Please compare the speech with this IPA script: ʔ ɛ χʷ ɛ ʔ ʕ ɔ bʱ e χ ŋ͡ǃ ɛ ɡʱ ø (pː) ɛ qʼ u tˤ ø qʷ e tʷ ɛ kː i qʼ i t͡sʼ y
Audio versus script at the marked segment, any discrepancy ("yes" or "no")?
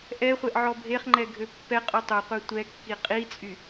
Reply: no